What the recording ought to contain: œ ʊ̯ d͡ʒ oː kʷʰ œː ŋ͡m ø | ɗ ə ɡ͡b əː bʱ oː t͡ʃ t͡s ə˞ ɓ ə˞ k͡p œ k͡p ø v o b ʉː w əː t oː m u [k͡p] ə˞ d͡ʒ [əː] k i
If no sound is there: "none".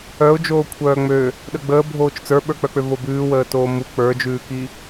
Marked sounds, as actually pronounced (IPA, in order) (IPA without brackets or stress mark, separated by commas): k͡p, ʉː